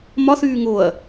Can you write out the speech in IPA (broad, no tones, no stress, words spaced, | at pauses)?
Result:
mɒθyː ŋoɐ̯